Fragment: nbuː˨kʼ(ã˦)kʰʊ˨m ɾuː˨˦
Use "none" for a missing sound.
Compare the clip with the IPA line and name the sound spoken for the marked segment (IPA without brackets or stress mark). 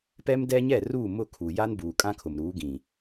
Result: ã˦